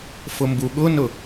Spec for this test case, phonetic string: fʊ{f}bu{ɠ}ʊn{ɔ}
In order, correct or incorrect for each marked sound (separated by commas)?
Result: incorrect, correct, incorrect